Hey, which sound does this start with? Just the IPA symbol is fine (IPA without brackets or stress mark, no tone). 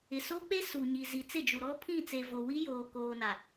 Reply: ɪ